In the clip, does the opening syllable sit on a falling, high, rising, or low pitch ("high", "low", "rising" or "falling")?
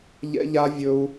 high